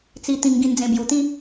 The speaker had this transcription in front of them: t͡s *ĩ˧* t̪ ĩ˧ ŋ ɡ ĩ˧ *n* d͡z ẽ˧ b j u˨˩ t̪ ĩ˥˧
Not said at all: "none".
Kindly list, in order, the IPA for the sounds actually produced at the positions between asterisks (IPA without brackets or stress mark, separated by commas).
i˧, n